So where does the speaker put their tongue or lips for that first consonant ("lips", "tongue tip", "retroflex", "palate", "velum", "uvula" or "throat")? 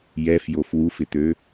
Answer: palate